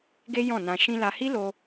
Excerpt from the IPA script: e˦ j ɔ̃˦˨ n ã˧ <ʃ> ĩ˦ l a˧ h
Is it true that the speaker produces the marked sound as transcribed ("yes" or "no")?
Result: yes